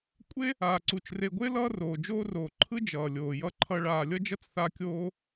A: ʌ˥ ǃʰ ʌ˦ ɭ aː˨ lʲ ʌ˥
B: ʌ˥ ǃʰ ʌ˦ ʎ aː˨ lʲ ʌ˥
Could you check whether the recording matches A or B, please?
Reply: A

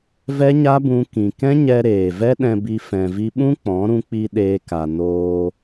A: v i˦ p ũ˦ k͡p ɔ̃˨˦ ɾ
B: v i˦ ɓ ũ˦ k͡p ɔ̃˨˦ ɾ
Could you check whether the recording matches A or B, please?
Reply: B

